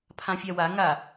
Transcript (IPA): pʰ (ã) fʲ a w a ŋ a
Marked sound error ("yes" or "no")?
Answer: no